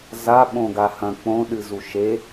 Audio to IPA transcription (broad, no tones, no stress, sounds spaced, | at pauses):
z a ɓ õ ɡ a h ɐ̃ k͡p õ ɗ ɨ z u ʃ e